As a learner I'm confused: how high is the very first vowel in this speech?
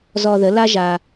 mid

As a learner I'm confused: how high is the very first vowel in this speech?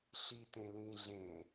high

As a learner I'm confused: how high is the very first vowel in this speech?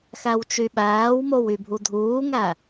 low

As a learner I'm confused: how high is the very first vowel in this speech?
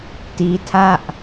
high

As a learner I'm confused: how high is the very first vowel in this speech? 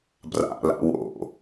low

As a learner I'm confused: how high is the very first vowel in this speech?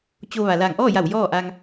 mid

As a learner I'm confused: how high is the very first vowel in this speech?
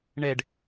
mid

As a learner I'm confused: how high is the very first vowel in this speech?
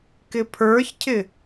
high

